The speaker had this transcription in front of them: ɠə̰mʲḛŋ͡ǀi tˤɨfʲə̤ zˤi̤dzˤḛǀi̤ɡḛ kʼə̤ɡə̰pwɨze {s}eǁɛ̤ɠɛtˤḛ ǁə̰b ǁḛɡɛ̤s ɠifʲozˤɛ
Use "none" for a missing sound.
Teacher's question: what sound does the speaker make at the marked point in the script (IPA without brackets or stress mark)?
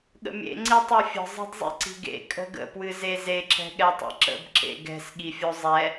z